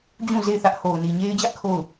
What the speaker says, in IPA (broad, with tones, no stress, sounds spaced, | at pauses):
d͡ʑ ũ˦˨ z e˦˨ ɪ̯ θ ä˦ ʔ h o˨ ʊ̯ n i˨ ɲ e˦ ɪ̯ d͡ʑ ä˦ ʔ kʰ o˦˨ ʊ̯